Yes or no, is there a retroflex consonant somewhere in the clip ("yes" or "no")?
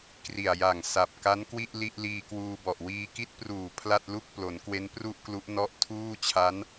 no